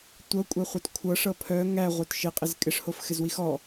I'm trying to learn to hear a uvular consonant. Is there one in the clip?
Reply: yes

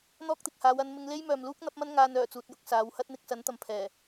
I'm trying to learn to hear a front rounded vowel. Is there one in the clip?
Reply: yes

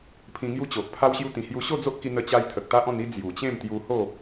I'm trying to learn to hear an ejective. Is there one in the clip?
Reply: no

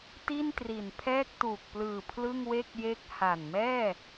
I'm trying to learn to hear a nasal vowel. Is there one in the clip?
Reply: no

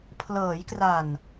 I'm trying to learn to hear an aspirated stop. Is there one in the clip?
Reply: yes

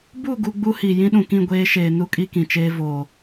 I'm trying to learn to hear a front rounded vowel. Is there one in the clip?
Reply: no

